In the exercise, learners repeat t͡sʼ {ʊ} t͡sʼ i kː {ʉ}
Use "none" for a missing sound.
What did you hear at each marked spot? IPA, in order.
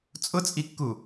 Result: ʊ, u

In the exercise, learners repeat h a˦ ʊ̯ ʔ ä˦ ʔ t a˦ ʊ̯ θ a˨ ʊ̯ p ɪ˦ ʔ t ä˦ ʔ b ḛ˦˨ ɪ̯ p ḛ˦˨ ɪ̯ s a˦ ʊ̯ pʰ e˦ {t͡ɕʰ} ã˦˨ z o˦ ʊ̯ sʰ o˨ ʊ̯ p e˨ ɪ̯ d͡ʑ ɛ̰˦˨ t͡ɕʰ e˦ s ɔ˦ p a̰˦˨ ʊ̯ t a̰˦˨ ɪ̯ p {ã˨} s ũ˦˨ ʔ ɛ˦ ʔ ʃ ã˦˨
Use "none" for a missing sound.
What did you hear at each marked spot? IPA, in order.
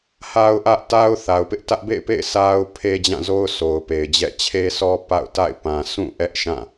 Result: d͡ʑ, ã˨

